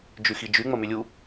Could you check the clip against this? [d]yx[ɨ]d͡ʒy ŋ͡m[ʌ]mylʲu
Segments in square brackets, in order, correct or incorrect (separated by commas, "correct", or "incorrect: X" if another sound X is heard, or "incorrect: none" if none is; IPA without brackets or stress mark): incorrect: d͡ʒ, incorrect: i, incorrect: ə